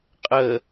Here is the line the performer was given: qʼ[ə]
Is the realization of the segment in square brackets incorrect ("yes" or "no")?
no